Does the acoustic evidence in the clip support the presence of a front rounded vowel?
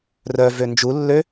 yes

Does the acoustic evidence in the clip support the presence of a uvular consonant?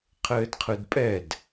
yes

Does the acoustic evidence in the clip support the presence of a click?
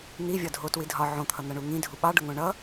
no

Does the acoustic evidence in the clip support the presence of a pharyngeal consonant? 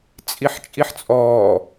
yes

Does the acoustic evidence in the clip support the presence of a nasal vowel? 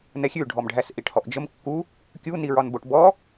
no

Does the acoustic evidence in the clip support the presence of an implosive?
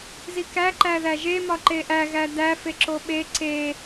yes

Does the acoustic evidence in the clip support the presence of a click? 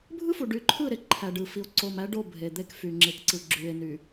yes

